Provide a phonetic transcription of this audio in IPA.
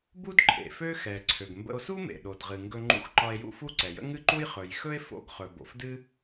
b u˥ d ǃʰ ḛ˩ f ø˥ x ɛ˩ ǀʰ ø˩ ɡ m b ə̰˧ o̯ s u˥ m ḛ˩ ɗ o˩ d ʁ ɨ˩ ŋ ɡ ɵ˧ ŋ͡ǃ ṵ˧ x ǃ ɒ˧ e̯ j ṵ˥ f u˥ ǀ ɛ˩ j ə̰˥ ŋ ɨ˥ ǃ u˥ j χ ɵ˩ j x ɵ˥ e̯ f o̰˧ ɡ χ ɵ˩ b o̰˩ f d ɨ˥

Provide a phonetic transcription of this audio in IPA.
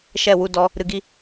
ʃ ɛ˦˨ w u˧ d ɔ˧ | ɾ ɨ˧ ɡ i˦

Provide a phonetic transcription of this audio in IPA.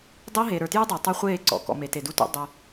dˤ e˦ ɦ e˨ ɾ ə˞˨ t j u˦ dˤ ø˨ tˤ ə˞˦ χʷ eː˦˨ ǀ ɔ̰˨ k ɔ̰˨ m e˨ t e˨ d u˦ t ṵ˦ dˤ ɵ˦

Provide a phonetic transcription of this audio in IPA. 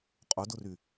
qʼ ʊ d ʊ r y

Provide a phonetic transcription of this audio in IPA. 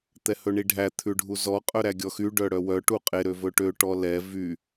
t̪ ɛ h ɵ ɳ i ɖʱ æ t̪ʰ ʉ ɖʱ u z ɔ qʼ œ ɾ æ ɡʲ ɔ x y ɖ œ ɽ œ w œ ʈ u qʼ e ɾ ø v ɵ ʈ ø ʈ ɔ l ɛ v y

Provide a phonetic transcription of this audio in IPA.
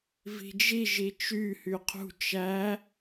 v i̤ d͡ʒ i ʒ i t͡ʃ y h y qʰ ṳ t͡ʃ æ

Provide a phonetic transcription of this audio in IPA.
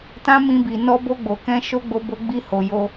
t ã˦ m ĩ˧ b i˨ n ɔ˧ b o˧ ɡ͡b o˨ k ɛ̃˧ ʃ o˦ ɡ͡b o˧ b o˧ ɡ͡b i˧ h o˨ j o˧

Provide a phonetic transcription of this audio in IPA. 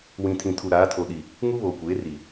w ĩ˨ tʰ ĩ˨ tʰ u˨ ɾ aː˨˦ tʰ o˨ ɗ i˨ | ŋ u˦ β oː˨ kʷ eː˨˦ r i˨

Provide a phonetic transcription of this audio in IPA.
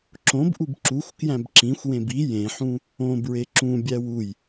ǁ õ b ʔ u b ǁ u xʷ k j æ̃ b ǁ ĩ xʷ w ẽ b i j ẽ ħ ũ | õ b ɹ e ǁ ũ bʲ æ w u j

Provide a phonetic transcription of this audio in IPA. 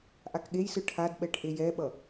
ʔ a k ɠ e j s ɯ ʈʰ a d ɓ ɛ ʈ ʔ e j ɛ ɓ ʌ

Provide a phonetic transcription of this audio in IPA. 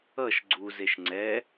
ʌ ʃ ɡ͡ǀ u z e ʃ ŋ͡ǀ ɛ

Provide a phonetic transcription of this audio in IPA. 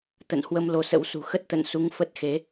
t̪ ə̰˧˨ n h w ə˧ m l o˧ s ə̰˧˥ w s ṳ˨˩ x ə˦˥ t̚ t̪ ə̰˧˨ n s u˨˦ ŋ f ə˦˥ t̚ x e˨˦

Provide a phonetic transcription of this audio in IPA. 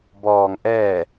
b ɔː˩ ŋ ʔ ɛː˧˩

